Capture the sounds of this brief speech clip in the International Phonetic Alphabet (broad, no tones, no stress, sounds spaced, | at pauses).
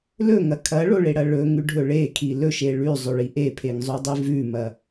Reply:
l ɵ ŋ ɐ kʰ ɐ ɭ o ɭ e ɽ ɐ ɭ ɵ ŋ ʉ ɖʱ ɵ ɭ e kʰ i l ɵ ʃ e ɭ ʉ zˤ ɵ ɭ i ʔ e pʰ e ŋ zˤ o dˤ i v ʉ m ɐ